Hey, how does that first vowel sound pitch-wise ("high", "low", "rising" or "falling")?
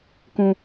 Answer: high